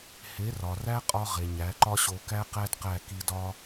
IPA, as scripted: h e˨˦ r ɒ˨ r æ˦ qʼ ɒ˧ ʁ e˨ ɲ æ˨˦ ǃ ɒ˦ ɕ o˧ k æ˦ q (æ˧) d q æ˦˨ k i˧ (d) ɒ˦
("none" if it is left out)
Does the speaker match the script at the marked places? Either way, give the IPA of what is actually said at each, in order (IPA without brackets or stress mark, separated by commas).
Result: æ˦, d